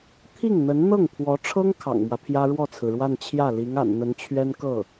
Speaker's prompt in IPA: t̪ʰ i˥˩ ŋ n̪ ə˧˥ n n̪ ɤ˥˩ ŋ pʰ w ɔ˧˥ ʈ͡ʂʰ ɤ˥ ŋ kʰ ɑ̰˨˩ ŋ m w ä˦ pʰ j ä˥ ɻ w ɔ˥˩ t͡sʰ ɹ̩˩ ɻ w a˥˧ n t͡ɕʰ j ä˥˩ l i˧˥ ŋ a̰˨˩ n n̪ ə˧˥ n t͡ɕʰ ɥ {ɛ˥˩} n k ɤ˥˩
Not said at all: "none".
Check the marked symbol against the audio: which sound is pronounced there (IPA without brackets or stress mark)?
ɛ˥